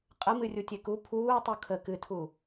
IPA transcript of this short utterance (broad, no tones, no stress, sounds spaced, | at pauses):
qʼ ə m ɨ rʲ u tʲ e k u pʰ uː tˤ u kʰ ə k ɨ tʰ u